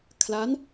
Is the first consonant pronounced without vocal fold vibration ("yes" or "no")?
yes